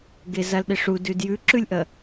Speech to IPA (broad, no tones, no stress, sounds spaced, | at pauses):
ɡ e z a l ɗ e ʂ u d ʉ d j ʉ ǁ ʉ lʲ ʔ ɐ